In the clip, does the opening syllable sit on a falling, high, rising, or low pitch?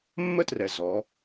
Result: high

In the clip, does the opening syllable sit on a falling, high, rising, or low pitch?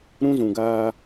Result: high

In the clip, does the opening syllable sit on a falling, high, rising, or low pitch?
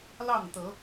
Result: falling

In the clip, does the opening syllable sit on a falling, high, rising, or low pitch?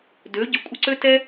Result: rising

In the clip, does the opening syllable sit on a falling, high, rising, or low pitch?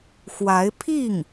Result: rising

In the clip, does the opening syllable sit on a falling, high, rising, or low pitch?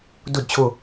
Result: falling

